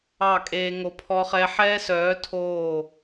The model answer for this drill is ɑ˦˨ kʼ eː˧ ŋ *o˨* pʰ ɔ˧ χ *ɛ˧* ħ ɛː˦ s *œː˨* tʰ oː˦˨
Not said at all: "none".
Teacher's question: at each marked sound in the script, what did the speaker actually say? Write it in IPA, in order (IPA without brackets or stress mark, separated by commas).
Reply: o˨, ɛ˧, œː˨˦